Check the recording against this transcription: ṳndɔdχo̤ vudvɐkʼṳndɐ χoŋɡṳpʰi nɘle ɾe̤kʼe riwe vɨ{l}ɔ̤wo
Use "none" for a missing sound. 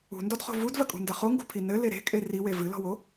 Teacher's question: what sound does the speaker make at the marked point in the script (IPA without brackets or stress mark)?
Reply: l